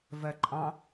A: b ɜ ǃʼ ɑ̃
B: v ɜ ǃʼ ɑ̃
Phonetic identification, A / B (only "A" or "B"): B